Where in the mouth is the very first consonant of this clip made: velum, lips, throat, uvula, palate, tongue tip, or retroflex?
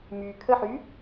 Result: lips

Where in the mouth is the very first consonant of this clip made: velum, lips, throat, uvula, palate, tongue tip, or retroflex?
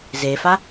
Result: tongue tip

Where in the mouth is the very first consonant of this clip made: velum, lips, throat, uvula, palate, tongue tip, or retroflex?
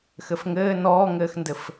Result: velum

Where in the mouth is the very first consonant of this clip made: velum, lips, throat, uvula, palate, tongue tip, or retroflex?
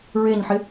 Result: tongue tip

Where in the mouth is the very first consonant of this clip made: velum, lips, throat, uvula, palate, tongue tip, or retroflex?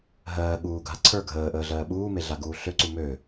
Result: throat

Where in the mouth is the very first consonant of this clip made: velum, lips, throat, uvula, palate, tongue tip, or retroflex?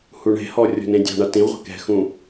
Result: throat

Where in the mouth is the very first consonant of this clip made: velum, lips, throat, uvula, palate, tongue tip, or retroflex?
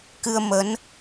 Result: velum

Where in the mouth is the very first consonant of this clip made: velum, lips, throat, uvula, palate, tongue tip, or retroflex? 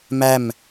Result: lips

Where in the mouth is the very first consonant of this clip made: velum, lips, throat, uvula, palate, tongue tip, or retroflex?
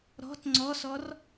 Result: tongue tip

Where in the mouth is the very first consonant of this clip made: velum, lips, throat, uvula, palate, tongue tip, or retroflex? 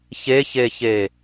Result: palate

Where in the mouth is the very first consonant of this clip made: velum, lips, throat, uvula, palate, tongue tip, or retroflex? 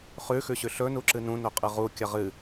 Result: uvula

